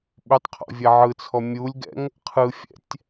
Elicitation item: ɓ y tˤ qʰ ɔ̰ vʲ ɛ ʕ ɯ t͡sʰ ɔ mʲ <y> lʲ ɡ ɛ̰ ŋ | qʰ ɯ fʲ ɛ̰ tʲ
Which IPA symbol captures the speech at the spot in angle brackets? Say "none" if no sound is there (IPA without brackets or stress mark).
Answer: u